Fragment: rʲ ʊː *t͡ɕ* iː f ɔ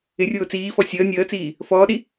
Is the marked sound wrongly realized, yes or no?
yes